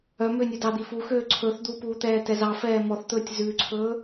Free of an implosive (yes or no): yes